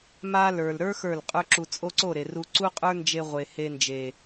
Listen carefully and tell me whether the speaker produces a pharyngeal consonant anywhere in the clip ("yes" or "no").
no